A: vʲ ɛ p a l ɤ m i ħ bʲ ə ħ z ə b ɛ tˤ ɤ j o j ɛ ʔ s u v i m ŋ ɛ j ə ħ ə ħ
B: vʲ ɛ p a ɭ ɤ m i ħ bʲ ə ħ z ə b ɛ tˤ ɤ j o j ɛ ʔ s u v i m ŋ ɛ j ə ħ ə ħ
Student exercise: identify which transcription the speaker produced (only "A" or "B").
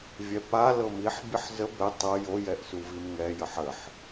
A